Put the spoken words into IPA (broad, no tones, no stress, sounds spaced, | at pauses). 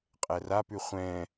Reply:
qʼ ɛ r a p ʉ χʷ ɛ̃